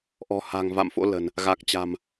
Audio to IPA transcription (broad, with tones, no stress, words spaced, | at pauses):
ʔɔ̤˨˩ha̤˨˩ŋ va̰˧˨mfo̰˧˥lə̤˨˩n | ɣa˨˩k̚t͡ɕa̤˨˩m